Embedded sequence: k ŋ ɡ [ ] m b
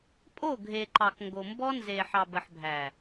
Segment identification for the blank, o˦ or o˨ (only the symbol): o˨